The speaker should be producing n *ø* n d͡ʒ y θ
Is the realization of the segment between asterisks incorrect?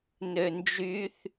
no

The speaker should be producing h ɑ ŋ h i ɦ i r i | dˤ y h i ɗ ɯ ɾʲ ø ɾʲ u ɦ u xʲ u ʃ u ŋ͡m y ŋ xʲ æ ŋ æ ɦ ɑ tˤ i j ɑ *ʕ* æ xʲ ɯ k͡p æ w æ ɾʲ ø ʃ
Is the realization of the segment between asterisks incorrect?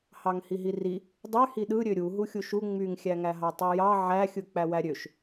no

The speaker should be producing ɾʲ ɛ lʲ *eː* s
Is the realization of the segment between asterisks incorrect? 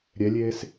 no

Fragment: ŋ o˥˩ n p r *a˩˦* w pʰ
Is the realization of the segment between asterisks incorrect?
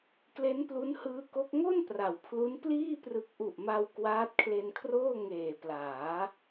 no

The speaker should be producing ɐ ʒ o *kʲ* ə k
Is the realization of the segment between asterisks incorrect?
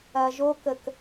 yes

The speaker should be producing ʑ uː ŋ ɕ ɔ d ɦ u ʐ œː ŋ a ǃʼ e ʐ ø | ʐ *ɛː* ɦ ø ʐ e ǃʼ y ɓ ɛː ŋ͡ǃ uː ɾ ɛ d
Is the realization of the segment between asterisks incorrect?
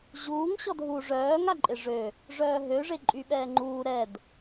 yes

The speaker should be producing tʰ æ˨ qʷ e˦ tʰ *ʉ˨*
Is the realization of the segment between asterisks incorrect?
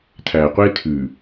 no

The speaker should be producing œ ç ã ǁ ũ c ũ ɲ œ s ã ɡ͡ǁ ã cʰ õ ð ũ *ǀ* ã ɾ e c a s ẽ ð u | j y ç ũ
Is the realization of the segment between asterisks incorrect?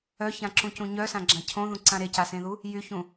no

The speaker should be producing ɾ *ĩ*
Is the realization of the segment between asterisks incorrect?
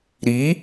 yes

